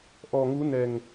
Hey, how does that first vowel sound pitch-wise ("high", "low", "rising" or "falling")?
low